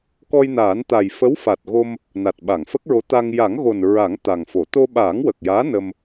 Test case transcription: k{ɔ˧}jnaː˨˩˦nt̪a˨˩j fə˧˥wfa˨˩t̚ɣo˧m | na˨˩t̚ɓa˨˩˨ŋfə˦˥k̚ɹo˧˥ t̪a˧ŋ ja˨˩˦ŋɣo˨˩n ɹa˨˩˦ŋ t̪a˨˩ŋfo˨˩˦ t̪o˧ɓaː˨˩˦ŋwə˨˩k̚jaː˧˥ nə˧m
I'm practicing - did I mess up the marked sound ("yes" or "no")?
no